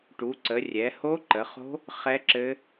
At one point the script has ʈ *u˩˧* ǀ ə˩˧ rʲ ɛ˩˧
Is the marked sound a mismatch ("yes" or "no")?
no